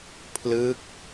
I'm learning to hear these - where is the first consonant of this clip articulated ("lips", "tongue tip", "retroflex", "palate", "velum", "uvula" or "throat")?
lips